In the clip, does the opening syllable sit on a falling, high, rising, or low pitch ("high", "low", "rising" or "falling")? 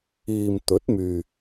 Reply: low